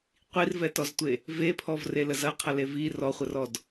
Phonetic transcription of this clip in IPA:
qʷ i r v ɛ t ɔ z tʷ e | v e pʰ ɔ v r e l ə z ɐ qʰ ɐ l e v i r ɔ χʷ ə r ɔ d

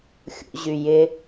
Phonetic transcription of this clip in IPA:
xʲ ṵ ʑ y j ɪ

